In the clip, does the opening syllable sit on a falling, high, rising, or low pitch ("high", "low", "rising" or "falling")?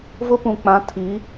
high